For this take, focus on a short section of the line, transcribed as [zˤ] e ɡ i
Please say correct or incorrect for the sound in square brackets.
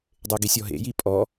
incorrect